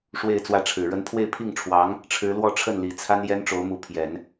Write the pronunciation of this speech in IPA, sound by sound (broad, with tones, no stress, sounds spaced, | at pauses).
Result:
ʂ w e˥˧ ɪ̯ t͡s w ä˥˩ ʈ͡ʂʰ ɻ̩˨˩ ɻ ə˧˥ n pʰ w e˥˧ ɪ̯ pʰ i˥˩ ŋ ʈ͡ʂʰ w ɑ˧˥ ŋ | ʈ͡ʂʰ ɻ̩˧˥ l w ɔ˥˧ ʈ͡ʂʰ ə˥˩ n l i˨˩ t͡sʰ a˥ n j ɛ˥ n ʈ͡ʂ o˧˥ ʊ̯ m u˧˥ pʰ j ɛ˨˩˦ n